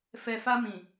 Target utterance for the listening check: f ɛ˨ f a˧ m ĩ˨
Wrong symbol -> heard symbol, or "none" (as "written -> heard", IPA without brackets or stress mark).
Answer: none